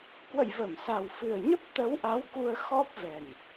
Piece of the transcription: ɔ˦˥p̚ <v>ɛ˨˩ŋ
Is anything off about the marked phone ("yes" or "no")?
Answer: no